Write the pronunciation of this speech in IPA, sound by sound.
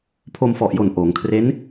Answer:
pʰ o˧ m f ɔ˨˩ ʔ j o˨˩ n ʔ oː˩˦ ŋ kʰ r e˦˥ n

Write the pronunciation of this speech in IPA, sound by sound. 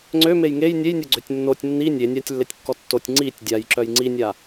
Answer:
ŋ͡ǀ ø m e j ŋ e j nʲ e j nʲ o ɡ͡ǀ ø tʲ nː o tʲ nː i nʲ e nʲ a tʲ lː e tʲ kː ɔ tː o tʲ ŋ͡ǀ i tʲ dʲ a j ǁ œ j ŋ͡ǀ i nʲ a

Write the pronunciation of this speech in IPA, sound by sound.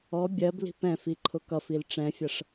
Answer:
ɔ bʲ ɜ b l i̤ p ɛ̃ f i ǃʰ ʊ k ʌ f i l ʈ͡ʂ ɛ̃ fʲ ʌ ʂ

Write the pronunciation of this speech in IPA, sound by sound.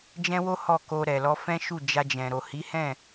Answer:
d͡ʒ ɛ̃˦ w o˦ h ɔ˦˨ k o˧ ɾ ɛ˨ l ɔ˧ f ɛ̃˦ ʃ u˦˨ d͡ʒ a˧ d͡ʒ ɛ̃˨ ɾ o˨ h i˨˦ h ɛ̃˦˨

